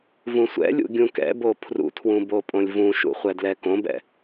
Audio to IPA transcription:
v ũ sʷ ɛ̰ lʲ ṵ ɡʲ ũ k ɛ̰ b o pʰ r ṵ tʰ w ũ b o pʼ õ lʲ v ũ ʃ ṵ χʷ ɛ d l ɛ k õ b ɛ̰

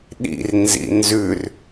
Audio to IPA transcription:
ɗ ḭ r n z ḭ n z ʉ r

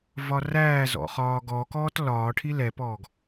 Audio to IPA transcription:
v ɒ r æː z ɔ̰ χ ɒː ɡ ɔ k ɔː t l ɒː ʈʰ i l ɛ p ɔː ɡ

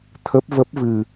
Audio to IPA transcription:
t̪ʰ ə˦˥ p̚ v ə˦˥ p̚ v ɨ˧

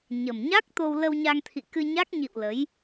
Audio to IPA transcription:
ɲ ə˨˩ m ɲ a˦˥ k̚ t̪ o˧ w l ə˧ w ɲ a˧ ŋ t̪ʰ ḭ˧˨ k ɨ˧ ɲ a˦˥ k̚ ɲ ḭ˧˨ w l ə˨˦ j

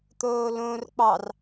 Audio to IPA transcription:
t̪ oː l õ r k͡p ɑ r

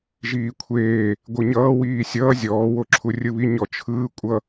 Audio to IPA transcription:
ʒ iː kʷʰ eː | ɡʷ ɯ ɲ ʌː w iː sʲ ʌː zʲ ɔː w o ǁʰ u rʲ ɯ β i ɲ ɔ t͡ʃʰ ɯː kʷʼ ʌ

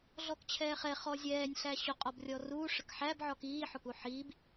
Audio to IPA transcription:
ɮ ɔ k t͡ɕʰ ɛː χ ɛ χ ɔ zʲ ɛː nʲ ɬ æ ɕ ʊ qʼ ɔ b rʲ ɔ r uː ʂ ə k ħ æ b ʕ ɔ k iː ħ ʊ k u ħ iː b

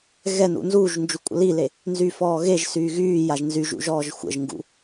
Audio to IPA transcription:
ɣ ɛ n ṵ n z uː ʒ n d͡ʒ u kʷʼ ə̰ l i l e | n z y f ɔː ɣ e ʒ s yː ɣ yː j a ʒ n z y ʒ ṵ ʒ ɔː ʒ xʷ ə̰ ʒ ŋ ɡ ṵ

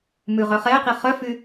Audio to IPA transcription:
m ʉ ʁ œ χ ɛ q i χ œ f y

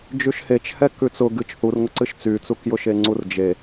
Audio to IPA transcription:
d͡ʒ ʉ ʃ h e t͡ʃ h ɛ k ʉ t͡s ʊ ɡ ɨ t͡ʃ θ u r ŋ ʊ ǀ ɨ ʃ t͡s y t͡s u k j ʊ ʃ e ŋ͡ǀ u r d͡ʒ e

